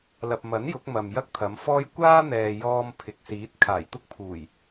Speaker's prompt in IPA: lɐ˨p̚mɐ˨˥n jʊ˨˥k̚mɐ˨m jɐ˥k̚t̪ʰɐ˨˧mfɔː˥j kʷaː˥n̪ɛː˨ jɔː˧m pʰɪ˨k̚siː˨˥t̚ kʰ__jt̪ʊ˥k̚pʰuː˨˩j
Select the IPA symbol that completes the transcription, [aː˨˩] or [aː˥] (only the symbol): aː˨˩